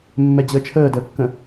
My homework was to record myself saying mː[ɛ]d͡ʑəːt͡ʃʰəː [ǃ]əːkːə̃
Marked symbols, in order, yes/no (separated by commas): yes, no